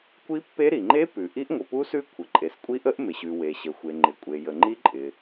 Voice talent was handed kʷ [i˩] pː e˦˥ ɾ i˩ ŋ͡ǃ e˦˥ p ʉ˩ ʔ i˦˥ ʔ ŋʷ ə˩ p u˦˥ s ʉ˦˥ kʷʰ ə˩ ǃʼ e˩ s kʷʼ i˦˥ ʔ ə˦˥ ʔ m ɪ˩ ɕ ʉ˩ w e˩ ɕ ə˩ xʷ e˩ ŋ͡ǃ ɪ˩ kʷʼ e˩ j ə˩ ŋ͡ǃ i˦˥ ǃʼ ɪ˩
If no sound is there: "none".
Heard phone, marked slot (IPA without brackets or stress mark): i˦˥